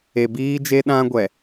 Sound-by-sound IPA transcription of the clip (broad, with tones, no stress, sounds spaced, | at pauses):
e˨ b iː˦ d͡ʒ e˦ ɗ ã˦ ɡʷ ɛ˨